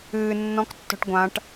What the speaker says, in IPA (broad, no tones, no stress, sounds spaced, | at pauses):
ɨː nː ɔ̃ k tː ɔ̤ ʈ ɡʷ ã ʈ